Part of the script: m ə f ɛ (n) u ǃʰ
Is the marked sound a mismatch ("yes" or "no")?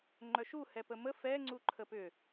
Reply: yes